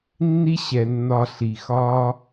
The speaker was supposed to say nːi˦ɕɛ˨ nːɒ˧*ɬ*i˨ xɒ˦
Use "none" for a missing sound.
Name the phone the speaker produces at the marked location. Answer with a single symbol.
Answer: ɬ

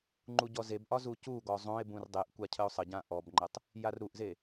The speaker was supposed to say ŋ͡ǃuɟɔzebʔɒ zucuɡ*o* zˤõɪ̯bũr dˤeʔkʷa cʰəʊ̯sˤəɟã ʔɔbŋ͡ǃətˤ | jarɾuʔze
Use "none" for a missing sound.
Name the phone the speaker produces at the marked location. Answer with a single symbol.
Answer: ɔ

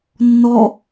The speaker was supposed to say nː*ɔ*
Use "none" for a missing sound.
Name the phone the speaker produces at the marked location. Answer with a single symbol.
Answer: ɔ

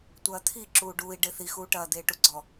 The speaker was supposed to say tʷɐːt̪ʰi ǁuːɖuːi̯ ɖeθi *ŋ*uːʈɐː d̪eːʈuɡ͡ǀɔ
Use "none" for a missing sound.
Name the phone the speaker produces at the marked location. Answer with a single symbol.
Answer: x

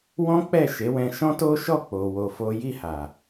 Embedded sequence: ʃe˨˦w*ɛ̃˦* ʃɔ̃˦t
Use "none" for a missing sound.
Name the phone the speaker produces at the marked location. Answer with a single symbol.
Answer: ɛ̃˧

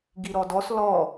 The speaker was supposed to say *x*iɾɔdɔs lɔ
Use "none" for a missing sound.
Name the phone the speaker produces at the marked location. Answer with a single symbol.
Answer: ɡ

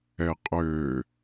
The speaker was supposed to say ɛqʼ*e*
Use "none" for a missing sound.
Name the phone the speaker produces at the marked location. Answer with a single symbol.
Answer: ø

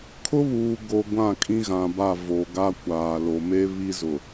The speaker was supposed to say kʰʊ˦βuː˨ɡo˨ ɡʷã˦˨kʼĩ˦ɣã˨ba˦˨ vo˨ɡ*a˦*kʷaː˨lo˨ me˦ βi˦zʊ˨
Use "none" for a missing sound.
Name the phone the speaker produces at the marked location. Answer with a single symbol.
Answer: a˦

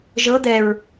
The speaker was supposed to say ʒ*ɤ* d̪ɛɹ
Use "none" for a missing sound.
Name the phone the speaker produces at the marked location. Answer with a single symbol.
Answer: ɤ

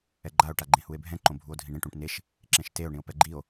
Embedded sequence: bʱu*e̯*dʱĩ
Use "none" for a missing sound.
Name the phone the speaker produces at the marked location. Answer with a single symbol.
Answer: o̯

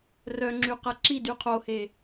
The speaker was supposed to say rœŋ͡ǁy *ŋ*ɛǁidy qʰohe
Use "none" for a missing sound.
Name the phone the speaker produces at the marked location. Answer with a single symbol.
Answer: q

